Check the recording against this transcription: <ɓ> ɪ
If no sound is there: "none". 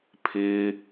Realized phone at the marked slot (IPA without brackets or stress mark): pʰ